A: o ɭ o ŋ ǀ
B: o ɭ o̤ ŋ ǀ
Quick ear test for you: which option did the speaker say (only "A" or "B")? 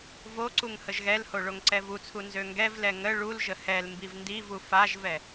A